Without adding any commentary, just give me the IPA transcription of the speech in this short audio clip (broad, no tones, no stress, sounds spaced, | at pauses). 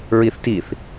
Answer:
ɹ i θ t i θ